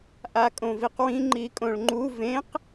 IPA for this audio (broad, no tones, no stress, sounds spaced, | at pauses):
ʔ a kʼ õ v i q w ĩ ŋ͡ǃ i kʼ õ ɭ ŋ͡ǃ u v ẽ q